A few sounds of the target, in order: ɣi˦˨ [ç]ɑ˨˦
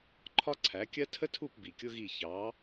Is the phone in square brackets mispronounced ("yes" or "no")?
no